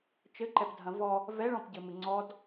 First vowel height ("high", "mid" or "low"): mid